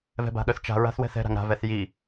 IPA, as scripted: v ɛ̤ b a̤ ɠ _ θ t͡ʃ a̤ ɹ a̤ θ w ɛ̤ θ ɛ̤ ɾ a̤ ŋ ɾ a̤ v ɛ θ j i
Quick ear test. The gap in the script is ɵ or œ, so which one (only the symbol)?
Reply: œ